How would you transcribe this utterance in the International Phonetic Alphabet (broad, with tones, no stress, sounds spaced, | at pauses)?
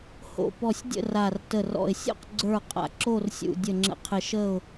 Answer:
h o̰˧˩ p ɔ˧˩ sʲ dʲ ə̰˥˨ r a˧˩ r t ə˧˩ r ɔ̰˧˩ ɪ̯ sʲ o̰˥˨ q ɡ͡ǀ ə˞˥˨ qʼ a̰˧˩ ǁ o˥˨ r sʲ ṵ˧˩ dʲ ə˧˩ ŋ͡ǁ ə̰˧˩ qʰ ɪ˧˩ ʃ ə˥˨ ʊ̯